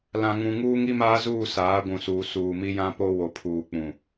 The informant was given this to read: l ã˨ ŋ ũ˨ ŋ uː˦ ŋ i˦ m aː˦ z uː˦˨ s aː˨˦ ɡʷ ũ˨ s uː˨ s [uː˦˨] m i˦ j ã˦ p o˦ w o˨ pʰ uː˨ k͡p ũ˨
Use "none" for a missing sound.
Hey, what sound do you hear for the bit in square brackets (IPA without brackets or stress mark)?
uː˨